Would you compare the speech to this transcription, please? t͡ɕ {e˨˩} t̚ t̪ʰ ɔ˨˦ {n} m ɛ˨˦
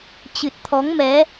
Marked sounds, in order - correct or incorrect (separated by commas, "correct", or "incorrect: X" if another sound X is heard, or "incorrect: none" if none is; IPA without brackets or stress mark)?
incorrect: ɨ˨˩, incorrect: ŋ